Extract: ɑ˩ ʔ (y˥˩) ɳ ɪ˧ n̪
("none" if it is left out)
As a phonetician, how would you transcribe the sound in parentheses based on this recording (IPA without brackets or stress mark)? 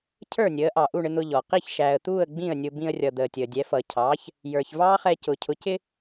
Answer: u˥˩